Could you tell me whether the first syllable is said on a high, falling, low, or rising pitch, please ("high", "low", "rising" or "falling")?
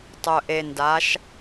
low